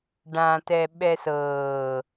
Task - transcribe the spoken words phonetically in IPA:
ɖ ã t ɛ ɓ ɛ s ɤː

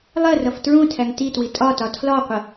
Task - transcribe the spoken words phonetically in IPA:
lˠ ɜ r ʌ f t ɹ ũ tʰ æ ŋ t i t w i tʼ ɒ t ɒ tʰ l ɒ qʷ ə

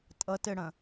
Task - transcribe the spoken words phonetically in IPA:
tʼ ʌ t ɘ ɽ ɐ̃

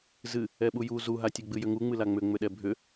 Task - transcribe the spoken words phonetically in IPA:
z ɨ | ɛ ɓ u j u z u ɦ a tʲ ɛ ɡ͡b ɨ j ʏ ŋ u ŋ͡m ɨ l a ŋ͡m ʏ ŋ͡m ʏ ɗ ɛ bʱ ʏ

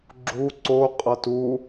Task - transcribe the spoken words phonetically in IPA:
ɡ͡ǁ u ǀ o qʼ ʌ t u

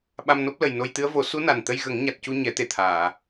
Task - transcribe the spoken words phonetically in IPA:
ɓ a˧ m n o˦˥ p̚ l ə˨˩ j n o˧ j t̪ ɨ˧˥ ə̯ v o˨˩˦ s u˧˥ n a˨˩ n t̪ ə˧ j ɣ ə˨˩˦ ŋ ɲ a˨˩ t̚ c u˧ ɲ ɛ˨˩˦ t̪ e˨˩ t̪ʰ aː˨˩˨

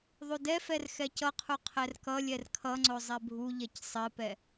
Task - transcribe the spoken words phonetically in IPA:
ðˤ u d ɛ f ɛ r x ɛ c ʌ qʰ u qʰ ɛ r k ʌ lʲ ɛ r kʰ ʌ ŋ͡ǀ o zˤ ɛ bʱ u ʎ ɛ c sˤ ɘ p ɛ

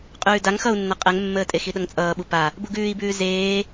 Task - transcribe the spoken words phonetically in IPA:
qʼ ʉː d a ŋ x ʌ u̯ nː ʌ qʼ ɛ ŋ mː əː tʼ e x i ɗ ʌ ŋ t͡sʼ ʌː ɓ u p a | b u ɡ ʉː i̯ b ʉː z eː

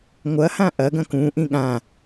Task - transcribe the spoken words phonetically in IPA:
ŋʷ ɐ h ã ʔ ɐ ɡ ɐ̃ k ũ ʔ ĩ ɠ ã

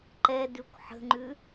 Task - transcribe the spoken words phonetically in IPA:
ǃ ɛ d ʉ kʷ ħ ə̤ ŋ͡ǃ ʉ

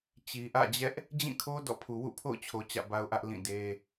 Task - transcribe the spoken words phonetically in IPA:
t͡ɕ i˨ ʔ ä̰˦˨ d͡ʑ ɛ˦ ʔ | d͡ʑ ĩ˦˨ kʰ o˦ d ɔ̰˦˨ pʰ u˨ w ṵ˦˨ pʰ o̰˦˨ ʊ̯ t͡ɕʰ o˨ t͡ɕ ä̰˦˨ b a˦ ʊ̯ ʔ ä˦ ʔ l ĩ˦˨ d e˦

